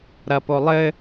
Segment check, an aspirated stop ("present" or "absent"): absent